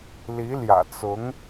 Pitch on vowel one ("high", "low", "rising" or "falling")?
rising